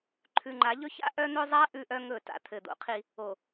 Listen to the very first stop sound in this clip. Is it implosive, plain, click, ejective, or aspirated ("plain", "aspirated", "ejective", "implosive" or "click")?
click